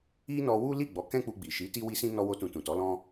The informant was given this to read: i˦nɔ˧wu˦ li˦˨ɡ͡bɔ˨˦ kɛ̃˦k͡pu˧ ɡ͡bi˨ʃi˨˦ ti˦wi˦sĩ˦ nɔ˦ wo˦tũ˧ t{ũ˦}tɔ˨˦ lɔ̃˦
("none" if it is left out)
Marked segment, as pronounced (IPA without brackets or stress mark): ũ˨